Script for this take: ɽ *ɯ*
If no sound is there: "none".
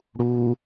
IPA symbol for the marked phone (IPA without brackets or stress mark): u